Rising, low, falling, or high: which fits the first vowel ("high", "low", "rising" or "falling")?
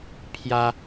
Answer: high